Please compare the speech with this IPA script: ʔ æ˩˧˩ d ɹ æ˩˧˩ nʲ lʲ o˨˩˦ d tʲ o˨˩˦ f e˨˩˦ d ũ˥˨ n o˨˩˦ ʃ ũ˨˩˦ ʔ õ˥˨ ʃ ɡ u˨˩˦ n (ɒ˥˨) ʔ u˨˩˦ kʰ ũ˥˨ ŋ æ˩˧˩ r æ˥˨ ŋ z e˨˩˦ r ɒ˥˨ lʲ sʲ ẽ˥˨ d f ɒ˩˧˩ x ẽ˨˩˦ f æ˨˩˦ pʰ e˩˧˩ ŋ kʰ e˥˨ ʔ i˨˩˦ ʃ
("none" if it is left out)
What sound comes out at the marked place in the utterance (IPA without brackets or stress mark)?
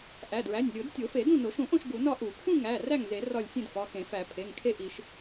ɒ˥˨